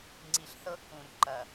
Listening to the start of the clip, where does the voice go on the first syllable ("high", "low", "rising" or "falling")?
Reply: low